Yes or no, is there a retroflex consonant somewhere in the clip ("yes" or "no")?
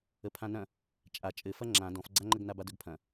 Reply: no